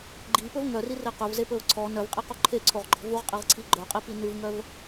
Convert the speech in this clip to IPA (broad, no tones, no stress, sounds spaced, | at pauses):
ɡ͡ǃ i p ɵ v ŋ œ r i r e q ɵ v z e p ɵ ʊ̯ ǀʰ ɔ n œ v qʼ i q o ǃʰ e ǀʰ o ʁ ɡ͡ǃ ɔ̤ v u ʁ qʼ i ʁ ǀʰ i ɡ͡ǃ œ qʼ i p i n ʉ v ŋ œ v